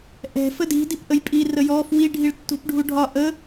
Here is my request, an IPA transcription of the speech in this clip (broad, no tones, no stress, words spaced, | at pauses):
ʔɛ̤ fədi̤ dipʔəjpʼi rəjɔ fwi ɖʱiɭtːṳpɖʱuɖʱɒ ʔə